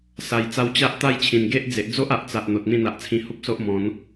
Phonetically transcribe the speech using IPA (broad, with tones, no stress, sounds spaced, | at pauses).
s a˧ j t͡s a˦ w t͡ɕ a˦ ʔ t̪ a˦ j t͡ɕʰ ĩ˨˩ n ɡ e˦ ʔ d͡z e˨ ʔ d͡z o˦ ʔ a˨ ʔ t͡s a˨ ʔ n̪ o˨ t̚ n̪ ĩ˥˧ n̪ a˨ ʔ t͡sʰ ĩ˧ h u˦ p̚ s o˦ ʔ m ɔ̃˨˦ n